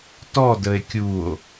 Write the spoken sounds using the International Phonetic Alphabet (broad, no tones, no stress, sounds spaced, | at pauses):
t ɔ d ə e̯ kʲ u o̯